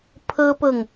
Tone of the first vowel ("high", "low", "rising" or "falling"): high